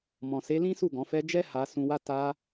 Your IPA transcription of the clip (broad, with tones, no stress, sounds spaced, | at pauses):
m ɔ̃˨ s e˨˦ l ĩ˦ s u˦˨ ɡ ɔ̃˨˦ f ɛ˦ d͡ʒ ɛ˦ h a˧ s ũ˧ w a˦ t a˧